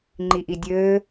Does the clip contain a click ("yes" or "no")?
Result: yes